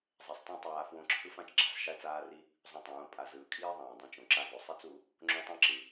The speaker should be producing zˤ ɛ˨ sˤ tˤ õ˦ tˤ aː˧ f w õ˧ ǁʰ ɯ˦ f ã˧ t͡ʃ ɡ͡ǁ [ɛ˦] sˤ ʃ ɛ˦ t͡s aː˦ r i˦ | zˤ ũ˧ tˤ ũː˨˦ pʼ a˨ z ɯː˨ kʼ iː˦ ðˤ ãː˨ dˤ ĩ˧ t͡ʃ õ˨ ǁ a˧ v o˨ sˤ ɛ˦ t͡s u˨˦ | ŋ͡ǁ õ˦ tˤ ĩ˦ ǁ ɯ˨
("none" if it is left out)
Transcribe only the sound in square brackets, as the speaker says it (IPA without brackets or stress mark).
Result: ɛ˨